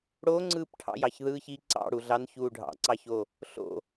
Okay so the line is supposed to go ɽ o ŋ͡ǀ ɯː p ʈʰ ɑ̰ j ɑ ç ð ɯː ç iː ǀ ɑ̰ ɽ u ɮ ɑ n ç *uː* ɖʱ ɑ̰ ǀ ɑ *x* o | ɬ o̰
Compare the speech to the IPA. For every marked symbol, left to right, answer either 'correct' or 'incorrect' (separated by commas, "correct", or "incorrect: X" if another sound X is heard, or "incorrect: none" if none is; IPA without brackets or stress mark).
correct, incorrect: ç